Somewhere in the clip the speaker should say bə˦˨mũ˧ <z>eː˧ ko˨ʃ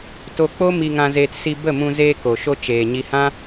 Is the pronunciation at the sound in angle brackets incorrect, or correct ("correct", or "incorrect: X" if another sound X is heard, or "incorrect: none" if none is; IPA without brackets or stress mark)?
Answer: correct